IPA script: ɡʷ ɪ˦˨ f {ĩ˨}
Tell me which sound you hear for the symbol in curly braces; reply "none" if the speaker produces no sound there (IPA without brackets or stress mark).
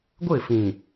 ĩ˨